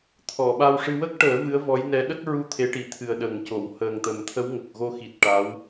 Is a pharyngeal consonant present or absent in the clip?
absent